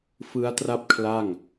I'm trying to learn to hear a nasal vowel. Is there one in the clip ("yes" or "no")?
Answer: no